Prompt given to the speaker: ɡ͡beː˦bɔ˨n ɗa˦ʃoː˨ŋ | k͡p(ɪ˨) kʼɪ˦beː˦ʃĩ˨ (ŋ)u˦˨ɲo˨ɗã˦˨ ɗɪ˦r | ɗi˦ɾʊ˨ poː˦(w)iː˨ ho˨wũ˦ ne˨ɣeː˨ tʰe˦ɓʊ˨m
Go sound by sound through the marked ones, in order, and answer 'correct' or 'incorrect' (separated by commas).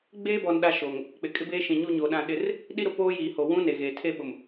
correct, incorrect, incorrect